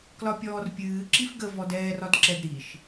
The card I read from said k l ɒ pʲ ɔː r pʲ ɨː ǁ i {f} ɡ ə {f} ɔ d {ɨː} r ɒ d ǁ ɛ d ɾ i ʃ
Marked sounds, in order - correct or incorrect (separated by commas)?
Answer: correct, incorrect, incorrect